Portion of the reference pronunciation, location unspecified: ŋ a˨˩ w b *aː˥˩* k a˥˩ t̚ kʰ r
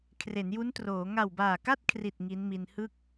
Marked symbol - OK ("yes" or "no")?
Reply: no